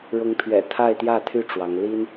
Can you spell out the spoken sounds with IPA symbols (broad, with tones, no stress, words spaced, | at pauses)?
ɻʊ˧˥ŋpʰɥɛ̰˨˩ t̪ʰa˥˧ɪ̯t̪jä˥˩t̪ʰy˥ ʈ͡ʂwɑ˧˥ŋ li˥n